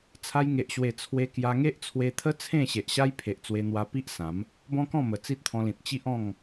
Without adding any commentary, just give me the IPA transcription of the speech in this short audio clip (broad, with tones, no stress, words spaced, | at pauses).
t͡sʰa˧jŋe˨ʔɕwe˨˩ t͡sʰwe˧kja˧ ŋe˦ʔt͡sʰwe˧t̪ʰə˦ t͡sʰẽ˥˧ɕe˨ʔɕa˦j pʰe˨ʔt͡swe˧n̪wa˧ pi˦ʔ sã˨˦m | bɔ̃˦kɔ̃˥˧mə˨˩ t͡si˦t̚t̪ʰɔ̃˧lĩ˨t̚ t͡ɕi˦ʔɔ̃˥˧ŋ